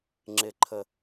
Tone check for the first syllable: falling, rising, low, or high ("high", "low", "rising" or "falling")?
low